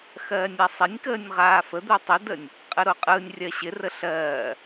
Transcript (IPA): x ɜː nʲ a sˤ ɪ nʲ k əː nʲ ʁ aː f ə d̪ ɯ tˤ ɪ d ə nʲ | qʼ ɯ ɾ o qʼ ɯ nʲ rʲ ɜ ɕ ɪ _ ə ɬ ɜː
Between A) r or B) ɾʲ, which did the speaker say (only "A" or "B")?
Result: A